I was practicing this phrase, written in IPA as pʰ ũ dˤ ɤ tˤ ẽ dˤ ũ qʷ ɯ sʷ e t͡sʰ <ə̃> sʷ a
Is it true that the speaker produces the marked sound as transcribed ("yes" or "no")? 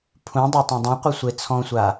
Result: no